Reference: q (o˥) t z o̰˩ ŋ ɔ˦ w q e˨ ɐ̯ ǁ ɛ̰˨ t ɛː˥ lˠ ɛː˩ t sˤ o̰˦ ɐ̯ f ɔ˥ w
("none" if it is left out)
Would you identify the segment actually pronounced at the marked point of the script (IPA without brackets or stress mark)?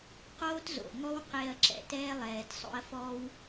oː˥